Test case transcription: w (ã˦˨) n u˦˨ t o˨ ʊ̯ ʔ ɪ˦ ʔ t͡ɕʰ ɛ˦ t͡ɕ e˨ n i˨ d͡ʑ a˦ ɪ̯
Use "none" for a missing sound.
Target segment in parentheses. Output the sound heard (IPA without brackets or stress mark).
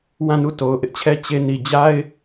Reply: ã˦˨